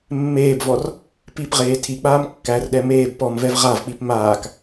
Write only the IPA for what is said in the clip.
mːeːbvɔr | pipʁeː tʰik͡paːm kːærɗɛ meːb pɔmvɛv ʁavk͡pip maːk

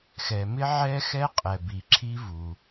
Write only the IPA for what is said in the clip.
xɛ˩mɪ˥ ʕɛ˥xɛ˥qʼɛ˩ bi˩ǁʰi˥vu˩

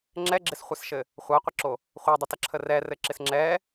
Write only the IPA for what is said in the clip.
ŋ͡ǁɛɡ͡ǁɪsχʷɛsʃɘ | χʷaqʷɘǁo | χʷadˤətəǁʰə rɛrɘǁɪs ŋ͡ǁɛ

